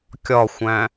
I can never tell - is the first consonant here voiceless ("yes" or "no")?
yes